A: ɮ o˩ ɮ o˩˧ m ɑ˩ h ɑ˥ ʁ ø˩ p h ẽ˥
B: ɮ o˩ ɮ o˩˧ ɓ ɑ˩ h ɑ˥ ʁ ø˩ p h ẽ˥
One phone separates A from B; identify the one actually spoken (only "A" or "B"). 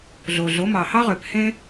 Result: A